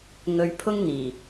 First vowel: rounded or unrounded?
rounded